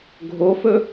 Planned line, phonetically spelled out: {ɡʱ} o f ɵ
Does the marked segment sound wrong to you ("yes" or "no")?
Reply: no